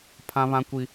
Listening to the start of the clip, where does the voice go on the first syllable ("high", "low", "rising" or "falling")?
high